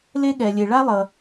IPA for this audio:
l e˥ ɠ ɛ˩ lʲ e˩ ɭ a˥ lˠ ʌ˩

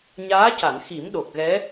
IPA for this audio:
ɲ aː˧˥ c a˨˩˨ n x i˨˩˦ m ɗ o˨˩ k̚ ɣ ɛ˧˥

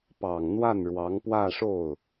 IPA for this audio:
p ɑ˨˩ ŋ n̪ w a˥˩ n ɻ w ɑ˧˥ ŋ p w ä˥˧ ʂ o˥˩ ʊ̯

